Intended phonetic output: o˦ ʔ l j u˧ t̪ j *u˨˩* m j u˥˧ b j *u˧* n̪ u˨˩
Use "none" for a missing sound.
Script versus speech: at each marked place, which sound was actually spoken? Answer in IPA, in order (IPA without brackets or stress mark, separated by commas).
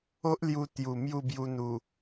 u˨˩, u˧